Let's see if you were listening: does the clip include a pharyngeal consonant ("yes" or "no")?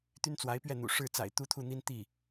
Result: no